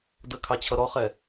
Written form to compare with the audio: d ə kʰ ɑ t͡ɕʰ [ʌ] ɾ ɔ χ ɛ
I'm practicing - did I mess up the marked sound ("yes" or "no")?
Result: no